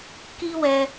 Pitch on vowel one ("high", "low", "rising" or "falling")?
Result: high